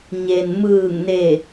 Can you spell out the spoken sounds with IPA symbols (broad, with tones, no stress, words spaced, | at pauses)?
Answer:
ɲe˩n mɯː˧˩ŋne˧˩